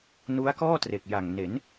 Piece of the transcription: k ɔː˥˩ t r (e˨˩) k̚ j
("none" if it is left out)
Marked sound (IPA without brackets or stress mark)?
e˨˩